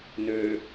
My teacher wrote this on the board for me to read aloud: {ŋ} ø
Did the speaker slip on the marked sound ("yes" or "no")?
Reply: yes